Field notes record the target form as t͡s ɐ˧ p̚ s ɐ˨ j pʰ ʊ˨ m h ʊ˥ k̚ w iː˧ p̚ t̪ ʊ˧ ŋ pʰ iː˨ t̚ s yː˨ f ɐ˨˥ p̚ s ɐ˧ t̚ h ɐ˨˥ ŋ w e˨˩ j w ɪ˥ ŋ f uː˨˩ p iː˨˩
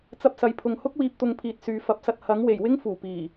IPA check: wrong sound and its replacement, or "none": m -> ŋ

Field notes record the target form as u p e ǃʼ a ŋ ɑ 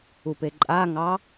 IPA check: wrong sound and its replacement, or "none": none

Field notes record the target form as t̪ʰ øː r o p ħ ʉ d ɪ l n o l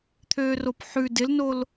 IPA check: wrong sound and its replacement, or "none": none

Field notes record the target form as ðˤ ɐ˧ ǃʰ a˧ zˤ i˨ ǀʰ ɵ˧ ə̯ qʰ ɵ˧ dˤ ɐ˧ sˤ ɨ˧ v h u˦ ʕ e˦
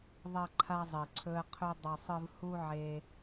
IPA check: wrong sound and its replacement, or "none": none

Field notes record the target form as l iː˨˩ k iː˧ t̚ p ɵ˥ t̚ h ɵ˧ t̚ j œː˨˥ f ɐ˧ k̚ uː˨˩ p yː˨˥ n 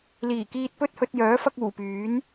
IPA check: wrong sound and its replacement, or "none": none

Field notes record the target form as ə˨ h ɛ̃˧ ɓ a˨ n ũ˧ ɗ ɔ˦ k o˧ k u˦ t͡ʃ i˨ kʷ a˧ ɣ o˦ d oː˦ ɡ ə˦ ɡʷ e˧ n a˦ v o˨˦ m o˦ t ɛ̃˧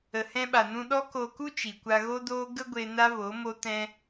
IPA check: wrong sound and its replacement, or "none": none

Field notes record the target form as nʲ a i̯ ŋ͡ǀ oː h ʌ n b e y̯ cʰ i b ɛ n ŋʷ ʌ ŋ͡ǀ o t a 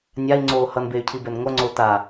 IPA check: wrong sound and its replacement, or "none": none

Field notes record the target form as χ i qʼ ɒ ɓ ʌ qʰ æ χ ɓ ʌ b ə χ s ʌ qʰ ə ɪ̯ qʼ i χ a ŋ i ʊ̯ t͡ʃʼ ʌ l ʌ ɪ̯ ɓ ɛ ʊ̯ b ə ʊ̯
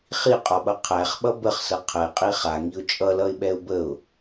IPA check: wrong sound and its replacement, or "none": none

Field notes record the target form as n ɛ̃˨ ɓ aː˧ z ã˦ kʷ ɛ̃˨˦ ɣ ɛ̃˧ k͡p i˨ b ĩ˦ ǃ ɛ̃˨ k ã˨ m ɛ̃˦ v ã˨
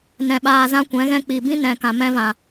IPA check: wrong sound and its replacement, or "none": ǃ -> n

